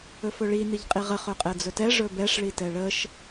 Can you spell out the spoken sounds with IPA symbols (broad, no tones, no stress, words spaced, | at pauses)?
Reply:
ɵfɵɭi niʎqʼiʁə χɵqʼɛd͡zɵtɛ ʐɵbɛʂ ɭitɛɭəʃ